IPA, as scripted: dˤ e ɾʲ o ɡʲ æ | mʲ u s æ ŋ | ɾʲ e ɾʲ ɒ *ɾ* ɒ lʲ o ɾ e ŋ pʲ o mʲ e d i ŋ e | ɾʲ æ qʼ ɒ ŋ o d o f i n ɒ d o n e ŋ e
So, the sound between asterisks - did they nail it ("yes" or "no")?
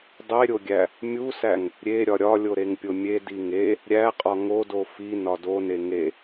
no